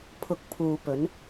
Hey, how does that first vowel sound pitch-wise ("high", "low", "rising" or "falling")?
rising